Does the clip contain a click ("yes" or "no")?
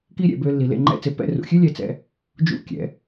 yes